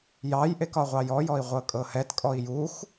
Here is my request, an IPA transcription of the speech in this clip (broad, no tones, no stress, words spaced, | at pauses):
jɑjʔek ɒʁʷɑjɔjɔi̯ ʁʷɤkʼɤhɛtkʼɔi̯ jux